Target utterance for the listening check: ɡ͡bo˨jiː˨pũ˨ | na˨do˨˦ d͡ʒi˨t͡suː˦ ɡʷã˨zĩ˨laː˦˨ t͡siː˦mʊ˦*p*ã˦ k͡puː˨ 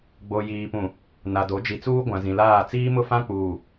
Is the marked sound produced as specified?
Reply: no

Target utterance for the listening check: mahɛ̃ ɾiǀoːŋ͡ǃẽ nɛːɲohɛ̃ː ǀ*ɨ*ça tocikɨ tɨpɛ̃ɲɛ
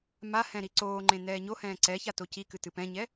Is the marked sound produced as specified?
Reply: no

